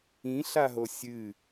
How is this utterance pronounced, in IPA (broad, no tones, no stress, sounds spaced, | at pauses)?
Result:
ĩ ɬ a ɦ o sʲ ɨ